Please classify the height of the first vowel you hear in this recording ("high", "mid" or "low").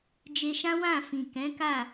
mid